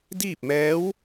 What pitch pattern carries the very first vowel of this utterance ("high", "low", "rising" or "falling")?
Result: falling